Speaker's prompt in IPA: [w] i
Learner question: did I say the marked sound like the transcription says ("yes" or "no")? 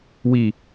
yes